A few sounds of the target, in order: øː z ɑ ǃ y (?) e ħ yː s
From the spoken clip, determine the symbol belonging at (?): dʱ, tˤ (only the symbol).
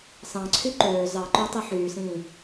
tˤ